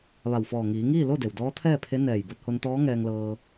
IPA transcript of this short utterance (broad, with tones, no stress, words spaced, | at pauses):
ʋa˧˩wfɔː˧˩ ŋiː˩˧ŋiː˥˨ lo˥˨de˩w dɔː˧˥t̪ʰɛː˥˨pʰe˧˥ nɛː˧˩j bo˧t̚ho˧nt̪ɔː˧˥ ŋɛː˧ŋlɤː˧